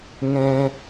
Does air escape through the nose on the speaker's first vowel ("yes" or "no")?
yes